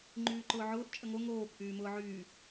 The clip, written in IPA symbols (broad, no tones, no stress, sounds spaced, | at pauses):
ŋ͡ǃ yː ǃ ʊː ʕ ʊː ʔ t͡ʃʼ ə ŋ o ŋ oː k ʔ yː m ʊː ʕ yː